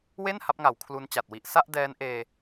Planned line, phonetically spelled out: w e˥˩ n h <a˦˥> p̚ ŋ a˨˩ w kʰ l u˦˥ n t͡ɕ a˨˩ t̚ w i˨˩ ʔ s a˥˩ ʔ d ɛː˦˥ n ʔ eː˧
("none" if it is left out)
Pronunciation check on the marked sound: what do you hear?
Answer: a˦˥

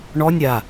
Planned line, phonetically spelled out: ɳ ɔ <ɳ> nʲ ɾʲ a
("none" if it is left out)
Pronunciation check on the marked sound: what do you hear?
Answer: none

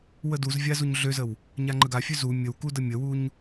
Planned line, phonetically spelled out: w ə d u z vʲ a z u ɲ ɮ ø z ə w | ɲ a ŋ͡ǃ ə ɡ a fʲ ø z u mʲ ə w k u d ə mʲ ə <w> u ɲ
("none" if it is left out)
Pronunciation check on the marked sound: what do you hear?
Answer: w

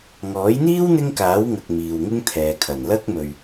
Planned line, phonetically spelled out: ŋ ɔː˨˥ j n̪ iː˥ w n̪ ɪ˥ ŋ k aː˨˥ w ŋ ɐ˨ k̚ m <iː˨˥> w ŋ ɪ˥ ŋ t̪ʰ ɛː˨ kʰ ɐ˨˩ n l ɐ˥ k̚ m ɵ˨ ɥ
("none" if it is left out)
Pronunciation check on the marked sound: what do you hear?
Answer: iː˨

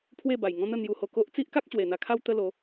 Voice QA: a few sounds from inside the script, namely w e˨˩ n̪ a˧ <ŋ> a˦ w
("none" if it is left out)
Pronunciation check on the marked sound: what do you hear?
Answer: kʰ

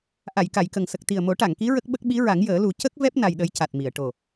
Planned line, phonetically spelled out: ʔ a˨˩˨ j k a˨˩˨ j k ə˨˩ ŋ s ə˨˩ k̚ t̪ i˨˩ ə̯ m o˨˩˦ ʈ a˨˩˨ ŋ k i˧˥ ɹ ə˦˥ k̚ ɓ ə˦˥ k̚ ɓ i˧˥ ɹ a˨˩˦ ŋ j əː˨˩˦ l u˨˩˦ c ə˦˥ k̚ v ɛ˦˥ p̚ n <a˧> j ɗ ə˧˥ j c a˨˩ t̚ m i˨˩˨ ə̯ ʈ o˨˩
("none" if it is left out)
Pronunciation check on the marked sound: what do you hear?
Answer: a˧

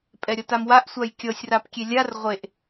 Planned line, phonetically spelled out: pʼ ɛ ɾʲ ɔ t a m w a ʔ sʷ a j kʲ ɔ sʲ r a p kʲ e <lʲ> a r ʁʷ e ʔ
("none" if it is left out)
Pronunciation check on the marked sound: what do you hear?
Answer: lʲ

